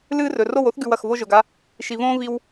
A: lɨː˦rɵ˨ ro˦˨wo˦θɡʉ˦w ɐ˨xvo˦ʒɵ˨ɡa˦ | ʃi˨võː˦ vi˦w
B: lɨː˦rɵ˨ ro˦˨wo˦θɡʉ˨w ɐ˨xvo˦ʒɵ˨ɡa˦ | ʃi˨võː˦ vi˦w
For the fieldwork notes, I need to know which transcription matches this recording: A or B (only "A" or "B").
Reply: B